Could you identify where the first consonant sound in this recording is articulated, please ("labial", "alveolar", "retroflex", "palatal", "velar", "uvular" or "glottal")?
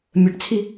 labial